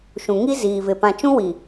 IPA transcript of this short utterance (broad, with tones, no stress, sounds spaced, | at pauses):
ʃ ũ˨ ŋ i˦ z iː˨ v ɪ˨ p ã˨ t͡ʃ ũ˦ w i˨